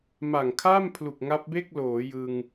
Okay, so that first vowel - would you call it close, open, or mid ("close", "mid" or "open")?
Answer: open